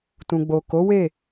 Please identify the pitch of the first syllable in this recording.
low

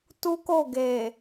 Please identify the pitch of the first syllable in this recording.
high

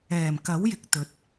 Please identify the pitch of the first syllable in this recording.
low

